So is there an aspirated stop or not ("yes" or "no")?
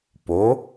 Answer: no